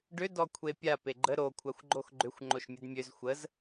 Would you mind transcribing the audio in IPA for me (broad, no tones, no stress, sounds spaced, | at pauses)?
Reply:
ɖ ʏ d ɔ kʷʰ e pʲ a p e ɡ͡ǃ ə ɾ o kʷʰ a xʷ ɡ͡ǃ o x ɡ͡ǃ ʏ xʷ ŋ͡ǃ o ʃ mʲ ə d mʲ ø z xʷ ə z